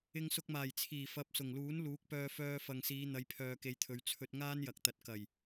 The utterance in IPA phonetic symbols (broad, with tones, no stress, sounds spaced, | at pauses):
ɪ˧ ŋ s ʊ˧ k̚ m aː˨˩ j t͡sʰ iː˨˩ f ɐ˨˥ p̚ s ʊ˨˩ ŋ l uː˨˥ n l uː˨˥ k̚ p œː˧ f œː˧ f ɐ˨ ŋ s iː˨˧ n̪ ɐ˨˧ j pʰ œː˨ k e˨˧ j t̪ʰ ɵ˨˧ ɥ t͡sʰ ɵ˧ t̚ ŋ aː˥ n j ɐ˨ k̚ t̪ ɐ˨ t̚ k ɐ˨˩ j